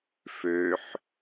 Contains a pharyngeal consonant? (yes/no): yes